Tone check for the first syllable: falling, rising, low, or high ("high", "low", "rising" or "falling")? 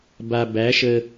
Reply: low